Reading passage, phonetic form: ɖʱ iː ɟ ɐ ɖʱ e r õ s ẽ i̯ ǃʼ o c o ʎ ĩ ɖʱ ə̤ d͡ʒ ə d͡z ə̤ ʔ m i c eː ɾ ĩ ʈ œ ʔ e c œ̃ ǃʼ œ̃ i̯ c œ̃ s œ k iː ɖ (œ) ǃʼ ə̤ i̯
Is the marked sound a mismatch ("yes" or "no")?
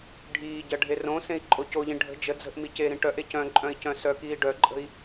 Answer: no